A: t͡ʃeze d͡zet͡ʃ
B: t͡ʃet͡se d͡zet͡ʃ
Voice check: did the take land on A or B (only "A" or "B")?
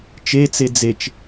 B